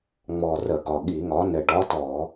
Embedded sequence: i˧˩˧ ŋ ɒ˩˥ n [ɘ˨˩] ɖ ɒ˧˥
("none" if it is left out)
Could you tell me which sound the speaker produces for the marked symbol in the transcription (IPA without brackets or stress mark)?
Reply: ɘ˨˩